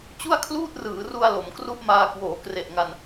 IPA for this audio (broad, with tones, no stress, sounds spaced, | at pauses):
t͡ɕ u˥˩ a̯ kʰ l uː˥˩ t̚ r ɯː˩˦ r u˧ a̯ l o˩˦ m k r u˥˩ ʔ m aː˧ k w oː˩˦ k r e˨˩ ʔ ŋ a˧ n